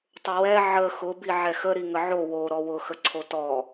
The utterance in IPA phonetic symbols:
tˤ ʊ w ɛ ʕ ə x ʊ b i ʕ ɛ x ə ɾ i ŋ ə ʕ o w o ɾ ɔ w ʊ x ə ǀʰ o t ɔ

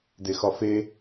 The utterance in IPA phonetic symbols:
d e x ɒ f e

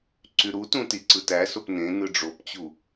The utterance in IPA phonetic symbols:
ǀ y ɾ u t ũ t i ǀ ɯ t æ s o p n ẽ n ɯ ɖ͡ʐ o p t͡ɕ u

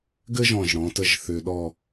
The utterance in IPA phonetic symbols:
ɡ ɘ˥ ʒ ɔ̃˧˩ ʒ ɽ ɔ̃ː˩˧ t ə˥˧ ʒ θ ʏː˧ ɗ ɔ˥˧

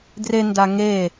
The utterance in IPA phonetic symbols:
d r e n d a ŋ e

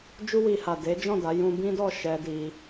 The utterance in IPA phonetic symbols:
d͡ʒ u˧ w i˨ h a˨ d e˨˦ d͡ʒ ɔ̃˦˨ d a˨˦ j ũ˧ b ĩ˦ d ɔ˦˨ ʃ ɛ˧ d i˧

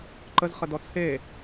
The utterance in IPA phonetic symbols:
ǃ ə z χ ə d ɔ t͡sʰ e

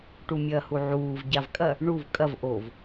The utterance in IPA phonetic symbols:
ʈ u mʲ ɐː h u ʕ uː v ɟ a v kʼ ɐ | ɳ u v kʼ ɐ v ʔ o v

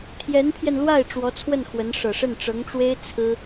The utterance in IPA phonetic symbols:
t̪ʰ j ɛ˧˥ n pʰ j ɛ˧ n l w a˥˩ ɪ̯ ʈ͡ʂ w ɔ˧˥ t͡sʰ w ə˥˩ n x w ə˧˥ n ʂ ɤ˨˩ ʂ ə˥˩ n ʈ͡ʂ ɤ˧˥ ŋ ʈ͡ʂ w e˥ ɪ̯ t͡sʰ ɹ̩˥

